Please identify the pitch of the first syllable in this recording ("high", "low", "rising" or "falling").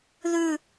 low